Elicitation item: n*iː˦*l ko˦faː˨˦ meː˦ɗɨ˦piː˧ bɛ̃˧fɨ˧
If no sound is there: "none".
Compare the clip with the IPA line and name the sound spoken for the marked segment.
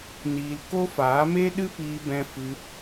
iː˧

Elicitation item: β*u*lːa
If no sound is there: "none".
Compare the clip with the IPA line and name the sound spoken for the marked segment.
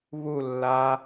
u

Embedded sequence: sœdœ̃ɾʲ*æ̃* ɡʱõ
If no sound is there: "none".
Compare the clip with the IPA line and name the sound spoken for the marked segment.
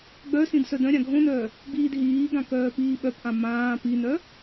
ã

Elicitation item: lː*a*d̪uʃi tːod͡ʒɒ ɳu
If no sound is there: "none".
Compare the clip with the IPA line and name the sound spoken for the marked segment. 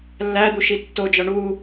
æ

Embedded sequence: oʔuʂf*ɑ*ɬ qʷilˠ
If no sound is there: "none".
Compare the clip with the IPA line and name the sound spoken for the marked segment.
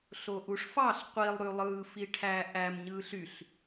ɑ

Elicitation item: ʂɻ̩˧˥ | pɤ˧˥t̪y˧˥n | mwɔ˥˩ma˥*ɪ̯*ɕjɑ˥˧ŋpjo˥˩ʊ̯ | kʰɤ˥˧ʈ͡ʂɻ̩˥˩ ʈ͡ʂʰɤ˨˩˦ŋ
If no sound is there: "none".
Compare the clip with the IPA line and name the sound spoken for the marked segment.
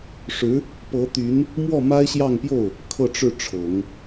ɪ̯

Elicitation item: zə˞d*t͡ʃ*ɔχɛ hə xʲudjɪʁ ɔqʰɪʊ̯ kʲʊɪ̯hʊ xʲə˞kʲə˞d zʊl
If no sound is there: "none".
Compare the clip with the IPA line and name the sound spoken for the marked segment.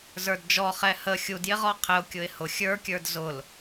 d͡ʒ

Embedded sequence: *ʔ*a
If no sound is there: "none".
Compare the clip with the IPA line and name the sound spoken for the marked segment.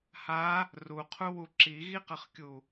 h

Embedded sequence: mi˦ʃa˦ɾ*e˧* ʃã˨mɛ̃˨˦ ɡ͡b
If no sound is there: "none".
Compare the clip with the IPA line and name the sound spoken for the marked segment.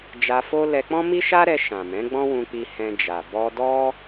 ɛ˧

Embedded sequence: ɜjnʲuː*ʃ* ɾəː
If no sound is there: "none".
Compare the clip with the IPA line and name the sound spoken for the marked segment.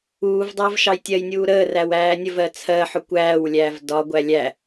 none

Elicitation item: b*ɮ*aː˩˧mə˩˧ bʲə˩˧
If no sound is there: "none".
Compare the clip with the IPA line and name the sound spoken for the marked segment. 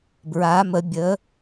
ɹ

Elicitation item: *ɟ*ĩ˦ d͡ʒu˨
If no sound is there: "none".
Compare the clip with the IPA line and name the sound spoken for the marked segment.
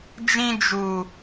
d͡ʒ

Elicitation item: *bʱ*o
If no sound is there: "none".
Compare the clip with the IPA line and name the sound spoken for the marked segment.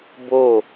b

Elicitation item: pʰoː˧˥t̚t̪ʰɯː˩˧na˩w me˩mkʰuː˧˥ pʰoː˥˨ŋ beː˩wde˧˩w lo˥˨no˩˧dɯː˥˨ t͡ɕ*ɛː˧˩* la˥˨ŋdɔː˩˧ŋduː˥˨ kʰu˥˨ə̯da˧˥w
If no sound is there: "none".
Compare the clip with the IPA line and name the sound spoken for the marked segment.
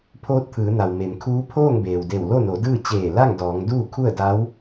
eː˧˩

